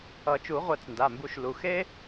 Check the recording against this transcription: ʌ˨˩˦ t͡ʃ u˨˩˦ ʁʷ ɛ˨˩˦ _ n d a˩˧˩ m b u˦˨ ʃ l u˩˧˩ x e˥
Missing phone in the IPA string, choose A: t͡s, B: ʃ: A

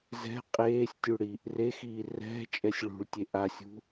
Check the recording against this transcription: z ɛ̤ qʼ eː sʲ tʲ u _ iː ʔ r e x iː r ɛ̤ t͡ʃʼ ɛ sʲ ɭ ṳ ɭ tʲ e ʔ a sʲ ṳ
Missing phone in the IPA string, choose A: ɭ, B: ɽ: B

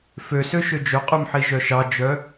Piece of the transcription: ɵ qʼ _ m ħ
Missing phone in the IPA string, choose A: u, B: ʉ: B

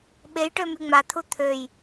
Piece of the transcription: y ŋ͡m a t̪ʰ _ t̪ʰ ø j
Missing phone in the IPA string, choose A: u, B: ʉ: A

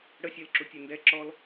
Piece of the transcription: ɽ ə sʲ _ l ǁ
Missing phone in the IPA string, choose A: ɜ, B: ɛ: A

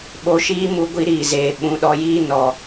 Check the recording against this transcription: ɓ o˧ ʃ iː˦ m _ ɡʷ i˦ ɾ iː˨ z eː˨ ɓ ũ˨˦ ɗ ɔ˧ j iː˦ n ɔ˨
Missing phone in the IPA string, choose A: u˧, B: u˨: A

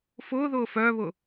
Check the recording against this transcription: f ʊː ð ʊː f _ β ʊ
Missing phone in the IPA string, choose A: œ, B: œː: B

